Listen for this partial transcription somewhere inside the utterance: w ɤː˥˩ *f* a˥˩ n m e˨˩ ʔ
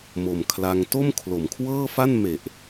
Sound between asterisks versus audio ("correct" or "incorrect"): correct